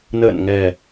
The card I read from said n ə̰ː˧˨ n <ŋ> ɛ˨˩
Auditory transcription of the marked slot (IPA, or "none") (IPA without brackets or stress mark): ŋ